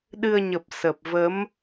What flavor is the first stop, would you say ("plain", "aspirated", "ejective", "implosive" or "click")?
implosive